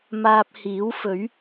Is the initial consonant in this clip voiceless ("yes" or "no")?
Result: no